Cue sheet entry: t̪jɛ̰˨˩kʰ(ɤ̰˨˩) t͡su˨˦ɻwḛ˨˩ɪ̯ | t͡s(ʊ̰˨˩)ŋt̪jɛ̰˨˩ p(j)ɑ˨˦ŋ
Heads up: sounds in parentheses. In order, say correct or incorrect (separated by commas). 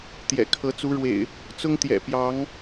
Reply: incorrect, incorrect, correct